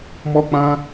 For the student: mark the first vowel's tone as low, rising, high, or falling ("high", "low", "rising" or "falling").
high